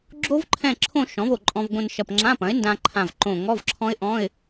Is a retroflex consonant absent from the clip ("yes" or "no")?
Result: yes